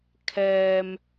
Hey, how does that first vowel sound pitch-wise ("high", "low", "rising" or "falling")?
low